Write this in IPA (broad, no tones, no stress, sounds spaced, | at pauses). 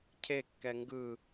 cʰ e kː ɛ ŋ ɡ ɯ